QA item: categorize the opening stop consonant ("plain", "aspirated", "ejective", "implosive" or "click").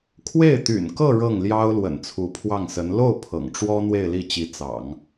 aspirated